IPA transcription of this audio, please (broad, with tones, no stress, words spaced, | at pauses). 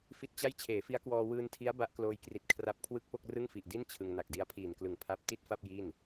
fi˦˥t̚t͡ɕa˥˩j t͡ɕʰeː˩˦fi˦˥a̯kwɔː˧ wɯː˧ntʰi˦˥a̯ ba˦˥ʔ kloː˧jkri˨˩t̚ kʰra˦˥p̚kʰwɯ˥˩k̚ po˥˩k̚rɯ˥˩ŋfi˨˩ʔ di˥˩n t͡ɕʰɯ˧ŋ na˨˩k̚di˧a̯pʰiː˨˩nklɯ˨˩ŋ pʰa˥˩p̚ ti˥˩t̚fa˥˩p̚ ji˥˩n